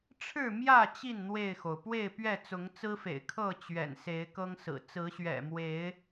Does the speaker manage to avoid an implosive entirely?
yes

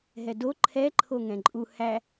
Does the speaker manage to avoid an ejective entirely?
no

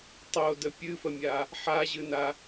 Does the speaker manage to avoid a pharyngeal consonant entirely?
no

